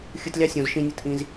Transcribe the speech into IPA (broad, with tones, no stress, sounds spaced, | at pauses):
xʲ ɯ˨ t lʲ ɑ˧ sʲ õ˨ z ʃ ĩ˧ nʲ ɯ˧ t ʔ ĩ˧ z